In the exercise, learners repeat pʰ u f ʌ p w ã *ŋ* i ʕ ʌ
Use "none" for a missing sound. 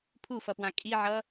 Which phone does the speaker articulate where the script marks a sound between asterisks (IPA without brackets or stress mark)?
kʼ